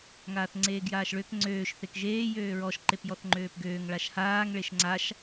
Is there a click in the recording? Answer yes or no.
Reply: yes